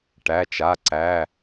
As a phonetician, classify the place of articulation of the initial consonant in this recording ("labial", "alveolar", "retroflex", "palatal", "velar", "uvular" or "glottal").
retroflex